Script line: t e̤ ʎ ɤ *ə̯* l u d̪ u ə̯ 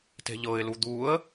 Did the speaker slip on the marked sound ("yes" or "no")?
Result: yes